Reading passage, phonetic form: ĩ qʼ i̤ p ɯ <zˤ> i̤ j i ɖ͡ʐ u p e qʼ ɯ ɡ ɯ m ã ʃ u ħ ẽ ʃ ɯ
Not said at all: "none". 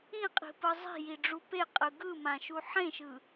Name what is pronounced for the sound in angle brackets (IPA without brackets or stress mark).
zˤ